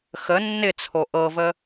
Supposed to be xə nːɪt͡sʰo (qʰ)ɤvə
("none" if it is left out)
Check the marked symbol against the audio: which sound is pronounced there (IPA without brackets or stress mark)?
ʔ